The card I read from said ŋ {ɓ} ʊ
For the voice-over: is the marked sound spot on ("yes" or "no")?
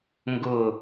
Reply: no